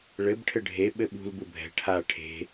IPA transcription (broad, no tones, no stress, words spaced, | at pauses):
ɭɘb ʈʰɘɖʱe ɓɘɓṳl bubʱɛ̤ ʈʰa ʈʰe̤